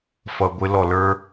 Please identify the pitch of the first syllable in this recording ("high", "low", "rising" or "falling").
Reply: low